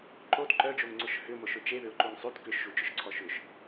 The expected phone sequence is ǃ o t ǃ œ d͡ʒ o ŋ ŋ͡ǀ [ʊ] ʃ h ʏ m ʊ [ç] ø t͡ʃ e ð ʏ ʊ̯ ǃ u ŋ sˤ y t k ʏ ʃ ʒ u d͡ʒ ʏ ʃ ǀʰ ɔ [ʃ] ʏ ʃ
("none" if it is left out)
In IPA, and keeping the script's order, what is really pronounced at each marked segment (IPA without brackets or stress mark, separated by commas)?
ʊ, ʃ, ʃ